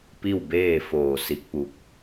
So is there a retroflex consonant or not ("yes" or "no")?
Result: no